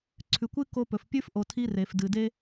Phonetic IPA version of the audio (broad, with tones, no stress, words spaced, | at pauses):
ǀʰʉ˨kʷɨ˦ ko˧pɵ˨fpʲʉ˦f ʔo˨tʰi˧ re˨f dɨ˨de˦